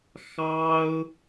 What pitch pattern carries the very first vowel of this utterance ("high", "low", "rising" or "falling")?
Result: high